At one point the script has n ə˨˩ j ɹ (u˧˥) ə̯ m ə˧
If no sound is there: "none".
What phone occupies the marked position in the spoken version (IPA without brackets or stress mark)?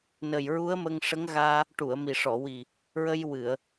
u˧˥